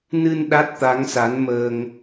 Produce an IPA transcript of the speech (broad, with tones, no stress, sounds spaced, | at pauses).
n ɨ˧ n ɗ a˦˥ t̚ t̪ a˨˦ ŋ s a˨˦ n m əː˧ ŋ